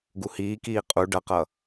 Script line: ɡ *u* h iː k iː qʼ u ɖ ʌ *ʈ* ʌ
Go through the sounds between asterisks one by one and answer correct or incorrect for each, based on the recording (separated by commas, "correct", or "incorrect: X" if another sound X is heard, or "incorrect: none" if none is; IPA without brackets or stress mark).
correct, incorrect: q